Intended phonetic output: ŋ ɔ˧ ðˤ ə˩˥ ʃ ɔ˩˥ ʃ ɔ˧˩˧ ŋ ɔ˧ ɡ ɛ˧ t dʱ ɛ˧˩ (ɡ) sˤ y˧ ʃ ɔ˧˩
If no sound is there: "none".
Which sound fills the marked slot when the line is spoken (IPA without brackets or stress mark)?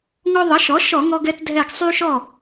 ɡ